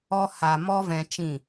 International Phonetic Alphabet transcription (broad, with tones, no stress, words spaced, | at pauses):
ɔ˧ha˨ mɔ˦vɛ̃˧t͡ʃĩ˦˨